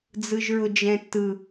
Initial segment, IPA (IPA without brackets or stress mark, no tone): d͡z